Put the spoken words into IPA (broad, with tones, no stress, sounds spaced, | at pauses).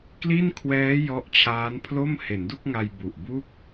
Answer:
k l i˥˩ n kʰ w ɛː˦˥ j ɔ˦˥ ʔ t͡ɕʰ aː˦˥ n pʰ l o˥˩ m h e˩˦ n d u˥˩ k̚ ŋ a˧ j b u˨˩ ʔ b u˥˩ k̚